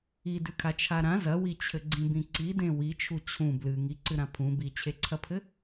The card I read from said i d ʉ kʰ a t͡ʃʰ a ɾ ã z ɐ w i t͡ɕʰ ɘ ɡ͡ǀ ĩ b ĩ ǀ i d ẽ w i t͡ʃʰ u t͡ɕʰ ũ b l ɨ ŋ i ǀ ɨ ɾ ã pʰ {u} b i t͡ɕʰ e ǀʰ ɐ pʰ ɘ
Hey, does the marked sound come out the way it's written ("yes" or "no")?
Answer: no